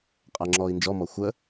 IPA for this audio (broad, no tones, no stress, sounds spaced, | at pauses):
qʼ æ ŋ͡ǁ ɔː i̯ n d͡ʒ ɔ m ɔ xʷ ə